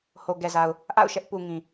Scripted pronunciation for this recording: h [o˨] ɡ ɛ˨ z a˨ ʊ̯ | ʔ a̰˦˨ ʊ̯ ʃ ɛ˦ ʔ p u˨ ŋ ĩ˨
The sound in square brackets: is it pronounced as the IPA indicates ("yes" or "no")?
yes